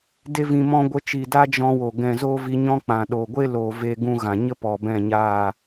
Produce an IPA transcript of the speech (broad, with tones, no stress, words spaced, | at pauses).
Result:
de˦vĩ˧ mɔ̃˧ɡʷə˨˦t͡ʃi˨ da˦ d͡ʒɔ̃˧wo˨ ɡɛ̃˨ zoː˦vi˧ɲɔ̃˦k͡pã˨ ɗo˨ɡʷe˦loː˨ ve˦ɡũ˦ɣã˨ ɲə˦ pɔ˨bɛ̃˦˨ɲaː˦˨